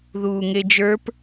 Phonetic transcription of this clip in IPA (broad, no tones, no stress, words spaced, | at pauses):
ðuːŋed͡ʒə˞p